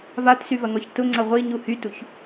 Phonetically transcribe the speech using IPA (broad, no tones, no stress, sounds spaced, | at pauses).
v a t s y v ɐ ŋ ɔ ç t ʊ ŋ͡ǀ ɐ ʁʷ i ɲ u h y t u ç